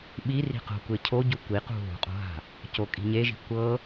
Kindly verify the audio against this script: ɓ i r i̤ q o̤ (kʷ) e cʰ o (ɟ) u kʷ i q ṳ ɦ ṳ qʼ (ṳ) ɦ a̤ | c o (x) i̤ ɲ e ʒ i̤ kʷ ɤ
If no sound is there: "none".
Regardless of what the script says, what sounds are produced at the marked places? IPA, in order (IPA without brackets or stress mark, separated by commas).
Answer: kʷ, ɟ, o̤, kʼ